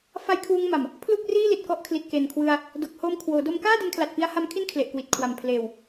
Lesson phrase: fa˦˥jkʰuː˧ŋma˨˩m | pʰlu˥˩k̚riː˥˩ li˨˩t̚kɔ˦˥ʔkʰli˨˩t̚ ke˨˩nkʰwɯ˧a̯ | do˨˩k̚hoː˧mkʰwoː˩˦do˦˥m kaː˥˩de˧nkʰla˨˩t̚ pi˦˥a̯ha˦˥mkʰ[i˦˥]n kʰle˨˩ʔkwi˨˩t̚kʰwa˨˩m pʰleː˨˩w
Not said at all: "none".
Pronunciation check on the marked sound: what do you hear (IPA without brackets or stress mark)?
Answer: i˥˩